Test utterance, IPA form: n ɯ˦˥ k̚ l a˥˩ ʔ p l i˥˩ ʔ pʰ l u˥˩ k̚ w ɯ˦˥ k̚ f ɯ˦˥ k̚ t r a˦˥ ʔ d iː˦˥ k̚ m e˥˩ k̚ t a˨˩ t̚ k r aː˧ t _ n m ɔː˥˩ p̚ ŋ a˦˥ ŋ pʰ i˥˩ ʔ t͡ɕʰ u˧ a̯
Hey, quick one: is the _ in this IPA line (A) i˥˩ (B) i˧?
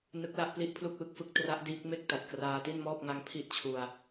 A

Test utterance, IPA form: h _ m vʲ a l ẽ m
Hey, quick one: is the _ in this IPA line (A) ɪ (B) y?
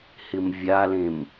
A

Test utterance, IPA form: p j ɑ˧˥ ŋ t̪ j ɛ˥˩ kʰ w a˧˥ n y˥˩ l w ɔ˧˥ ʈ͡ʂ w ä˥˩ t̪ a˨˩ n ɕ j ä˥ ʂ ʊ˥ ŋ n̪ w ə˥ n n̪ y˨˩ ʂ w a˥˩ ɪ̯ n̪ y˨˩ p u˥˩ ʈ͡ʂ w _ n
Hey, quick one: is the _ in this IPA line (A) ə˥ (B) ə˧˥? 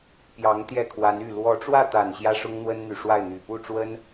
A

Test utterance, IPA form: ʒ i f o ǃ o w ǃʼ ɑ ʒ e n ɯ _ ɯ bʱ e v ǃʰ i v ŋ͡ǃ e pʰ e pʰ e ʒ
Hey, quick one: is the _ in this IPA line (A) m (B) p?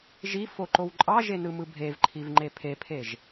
A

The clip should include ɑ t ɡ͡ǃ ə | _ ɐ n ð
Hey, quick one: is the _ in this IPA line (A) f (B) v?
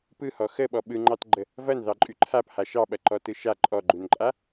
B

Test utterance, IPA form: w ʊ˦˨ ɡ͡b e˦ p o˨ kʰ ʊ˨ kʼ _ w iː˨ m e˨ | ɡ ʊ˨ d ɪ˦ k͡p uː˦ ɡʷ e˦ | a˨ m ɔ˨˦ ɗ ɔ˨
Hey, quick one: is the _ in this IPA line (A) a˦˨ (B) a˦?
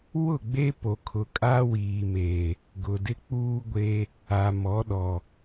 B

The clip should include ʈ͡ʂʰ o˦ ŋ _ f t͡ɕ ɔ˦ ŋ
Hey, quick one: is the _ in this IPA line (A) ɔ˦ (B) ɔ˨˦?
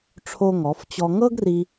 B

